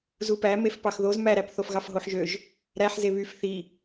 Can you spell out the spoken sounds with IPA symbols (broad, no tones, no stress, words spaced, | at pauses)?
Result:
zupæ mefpɑxðoz mæɾæpθof ɣɑfɦoħʒøʒ | ɾæħze βyf θi